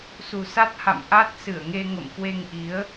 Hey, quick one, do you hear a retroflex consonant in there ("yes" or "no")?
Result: no